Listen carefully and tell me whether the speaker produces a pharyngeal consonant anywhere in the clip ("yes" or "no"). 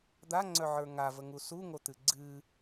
yes